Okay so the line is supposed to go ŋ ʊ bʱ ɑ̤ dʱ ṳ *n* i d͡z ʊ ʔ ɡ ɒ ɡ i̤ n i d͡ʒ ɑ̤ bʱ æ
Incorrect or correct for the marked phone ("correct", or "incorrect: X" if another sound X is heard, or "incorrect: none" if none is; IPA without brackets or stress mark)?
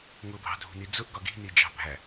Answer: correct